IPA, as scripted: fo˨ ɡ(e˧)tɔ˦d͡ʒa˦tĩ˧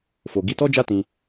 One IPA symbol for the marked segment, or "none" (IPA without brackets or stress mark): i˧